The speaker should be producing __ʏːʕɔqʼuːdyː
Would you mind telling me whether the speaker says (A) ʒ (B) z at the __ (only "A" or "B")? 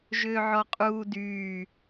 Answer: A